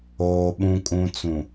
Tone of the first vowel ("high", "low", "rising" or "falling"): low